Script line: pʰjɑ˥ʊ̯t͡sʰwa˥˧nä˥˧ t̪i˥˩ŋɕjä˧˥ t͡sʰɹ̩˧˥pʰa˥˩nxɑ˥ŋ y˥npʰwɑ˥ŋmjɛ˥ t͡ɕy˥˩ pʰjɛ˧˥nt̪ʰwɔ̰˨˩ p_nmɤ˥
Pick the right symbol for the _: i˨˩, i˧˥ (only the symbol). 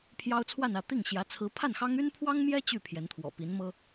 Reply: i˧˥